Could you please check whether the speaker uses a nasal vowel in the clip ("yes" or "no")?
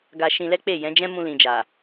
yes